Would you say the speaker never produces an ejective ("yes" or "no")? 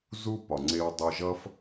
yes